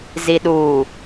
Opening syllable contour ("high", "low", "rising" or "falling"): low